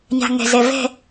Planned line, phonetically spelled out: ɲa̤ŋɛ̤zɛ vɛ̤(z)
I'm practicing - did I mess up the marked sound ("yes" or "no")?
yes